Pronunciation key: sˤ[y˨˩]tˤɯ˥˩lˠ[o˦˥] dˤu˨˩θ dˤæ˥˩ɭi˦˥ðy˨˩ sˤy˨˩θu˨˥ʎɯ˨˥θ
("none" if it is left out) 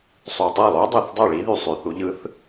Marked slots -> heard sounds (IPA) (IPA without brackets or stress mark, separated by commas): y˨˩, o˦˥